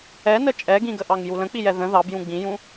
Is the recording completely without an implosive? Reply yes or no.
yes